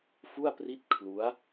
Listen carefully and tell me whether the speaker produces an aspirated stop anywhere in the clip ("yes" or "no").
yes